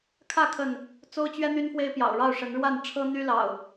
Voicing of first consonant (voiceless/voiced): voiceless